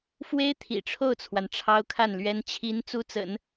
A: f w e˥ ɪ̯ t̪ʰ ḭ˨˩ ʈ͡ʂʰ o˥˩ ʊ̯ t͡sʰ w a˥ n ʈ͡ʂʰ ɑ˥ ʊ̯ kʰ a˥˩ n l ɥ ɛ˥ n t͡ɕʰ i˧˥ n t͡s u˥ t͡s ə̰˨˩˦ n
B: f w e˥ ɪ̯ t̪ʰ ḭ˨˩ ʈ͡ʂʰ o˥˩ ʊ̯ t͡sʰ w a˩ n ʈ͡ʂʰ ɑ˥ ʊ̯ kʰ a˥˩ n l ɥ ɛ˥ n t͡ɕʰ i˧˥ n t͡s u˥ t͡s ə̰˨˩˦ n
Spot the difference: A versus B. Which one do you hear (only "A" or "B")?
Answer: B